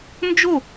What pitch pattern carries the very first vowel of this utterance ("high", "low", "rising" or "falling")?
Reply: falling